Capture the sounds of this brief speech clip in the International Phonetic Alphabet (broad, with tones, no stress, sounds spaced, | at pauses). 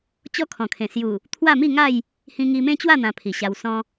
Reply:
t͡ɕ ɔ˦ kʰ ɔ̃˨˩ kʰ ẽ˨˩ s j u˨˩ | t̪ʰ w a˥˧ m i˥˧ ŋ a˥˧ j | h ĩ˧ ŋ i˧ m ẽ˦ t͡ɕ w a˥˧ n̪ ã˧ pʰ i˨˩ ɕ a˧ w s ɔ̃˧